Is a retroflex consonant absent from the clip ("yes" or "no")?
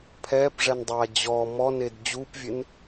no